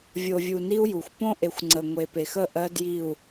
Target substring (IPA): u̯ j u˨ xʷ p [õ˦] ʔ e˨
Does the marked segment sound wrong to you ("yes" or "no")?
no